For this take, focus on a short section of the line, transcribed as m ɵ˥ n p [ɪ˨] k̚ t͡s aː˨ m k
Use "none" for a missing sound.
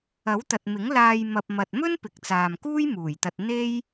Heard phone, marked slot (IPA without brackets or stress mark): ɪ˨